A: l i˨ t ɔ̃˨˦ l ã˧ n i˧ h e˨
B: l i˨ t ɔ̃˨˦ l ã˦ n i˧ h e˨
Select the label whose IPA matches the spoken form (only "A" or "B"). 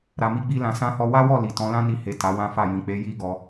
B